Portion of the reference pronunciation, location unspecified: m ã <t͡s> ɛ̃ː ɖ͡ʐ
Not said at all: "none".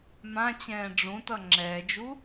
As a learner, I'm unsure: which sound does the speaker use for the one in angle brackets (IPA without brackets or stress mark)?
t͡ɕ